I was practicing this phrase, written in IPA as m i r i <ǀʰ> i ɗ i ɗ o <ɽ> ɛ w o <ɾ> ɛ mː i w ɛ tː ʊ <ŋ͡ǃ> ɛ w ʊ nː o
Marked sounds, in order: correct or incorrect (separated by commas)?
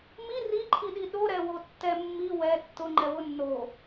incorrect, incorrect, incorrect, correct